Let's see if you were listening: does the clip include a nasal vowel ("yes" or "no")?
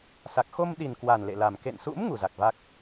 no